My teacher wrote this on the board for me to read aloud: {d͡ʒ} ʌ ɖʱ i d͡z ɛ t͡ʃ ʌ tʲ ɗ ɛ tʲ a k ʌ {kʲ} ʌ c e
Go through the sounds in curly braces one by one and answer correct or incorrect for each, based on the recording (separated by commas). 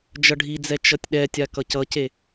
correct, incorrect